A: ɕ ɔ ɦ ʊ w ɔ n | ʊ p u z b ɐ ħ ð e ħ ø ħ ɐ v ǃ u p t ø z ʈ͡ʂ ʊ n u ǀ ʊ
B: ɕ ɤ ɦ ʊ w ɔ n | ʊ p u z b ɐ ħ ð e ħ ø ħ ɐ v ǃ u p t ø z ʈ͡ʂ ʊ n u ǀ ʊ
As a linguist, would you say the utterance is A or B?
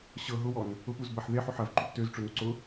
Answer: B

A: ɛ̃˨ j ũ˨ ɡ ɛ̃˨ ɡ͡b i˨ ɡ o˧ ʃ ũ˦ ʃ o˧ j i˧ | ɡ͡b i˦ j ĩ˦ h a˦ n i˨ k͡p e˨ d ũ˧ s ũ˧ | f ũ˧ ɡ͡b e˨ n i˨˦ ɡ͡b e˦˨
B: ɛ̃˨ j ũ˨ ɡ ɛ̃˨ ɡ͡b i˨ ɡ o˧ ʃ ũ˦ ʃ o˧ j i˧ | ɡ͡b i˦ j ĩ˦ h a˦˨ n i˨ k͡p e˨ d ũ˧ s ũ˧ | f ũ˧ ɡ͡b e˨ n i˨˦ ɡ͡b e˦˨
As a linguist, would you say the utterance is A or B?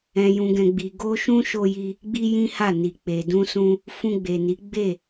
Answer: B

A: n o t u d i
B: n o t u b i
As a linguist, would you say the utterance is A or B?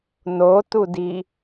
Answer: A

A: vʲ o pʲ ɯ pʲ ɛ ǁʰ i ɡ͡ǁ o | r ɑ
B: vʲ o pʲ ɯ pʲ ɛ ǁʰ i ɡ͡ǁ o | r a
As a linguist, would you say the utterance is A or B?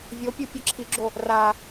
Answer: B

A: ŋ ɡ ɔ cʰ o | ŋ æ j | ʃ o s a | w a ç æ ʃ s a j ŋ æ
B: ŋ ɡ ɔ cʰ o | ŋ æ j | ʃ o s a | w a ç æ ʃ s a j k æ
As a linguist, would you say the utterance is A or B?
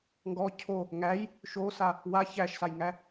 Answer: A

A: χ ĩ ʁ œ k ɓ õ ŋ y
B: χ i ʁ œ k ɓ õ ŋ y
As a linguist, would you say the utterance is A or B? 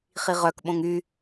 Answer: B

